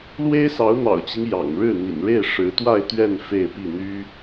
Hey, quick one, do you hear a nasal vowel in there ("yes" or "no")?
no